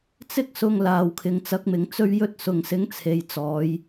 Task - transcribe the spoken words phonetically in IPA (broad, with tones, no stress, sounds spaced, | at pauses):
t͡s ɪ˥ k̚ s ʊ˧ ŋ l aː˨ w kʰ ɪ˨ ŋ t͡s ɐ˨˥ k̚ m ɪ˨ ŋ t͡s ɵ˥ ɥ j ɵ˥ t̚ s ʊ˨ ŋ s ɪ˨˧ ŋ t͡sʰ e˨ j t͡s ɔː˨˧ j